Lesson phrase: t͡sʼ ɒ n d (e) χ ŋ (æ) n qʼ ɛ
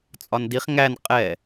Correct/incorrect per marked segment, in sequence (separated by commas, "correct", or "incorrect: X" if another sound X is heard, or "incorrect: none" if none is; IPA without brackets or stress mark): incorrect: i, correct